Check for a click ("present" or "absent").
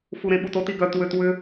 absent